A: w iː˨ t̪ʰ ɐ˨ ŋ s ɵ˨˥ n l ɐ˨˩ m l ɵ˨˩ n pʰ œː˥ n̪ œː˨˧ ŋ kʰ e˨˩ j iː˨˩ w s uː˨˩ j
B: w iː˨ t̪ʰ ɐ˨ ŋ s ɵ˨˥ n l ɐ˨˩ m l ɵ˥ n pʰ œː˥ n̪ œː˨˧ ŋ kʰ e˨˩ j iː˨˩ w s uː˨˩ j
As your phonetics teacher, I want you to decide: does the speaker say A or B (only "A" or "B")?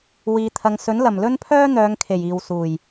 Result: B